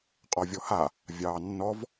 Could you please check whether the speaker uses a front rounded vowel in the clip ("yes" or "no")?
no